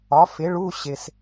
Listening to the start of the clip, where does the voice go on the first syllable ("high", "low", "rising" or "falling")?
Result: rising